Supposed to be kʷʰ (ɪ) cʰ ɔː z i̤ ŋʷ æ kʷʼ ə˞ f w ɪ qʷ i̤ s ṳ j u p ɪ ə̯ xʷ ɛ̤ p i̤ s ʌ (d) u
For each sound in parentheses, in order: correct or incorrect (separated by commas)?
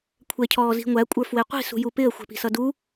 incorrect, correct